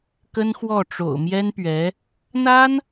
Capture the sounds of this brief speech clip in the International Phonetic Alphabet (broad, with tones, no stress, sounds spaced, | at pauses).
k ə˥ n x w ɔ˥˩ ʈ͡ʂ o̰˨˩ ʊ̯ m j ɛ˥ n p ɥ ɛ˧˥ | n̪ a˥ n